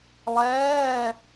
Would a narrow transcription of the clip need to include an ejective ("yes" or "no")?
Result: no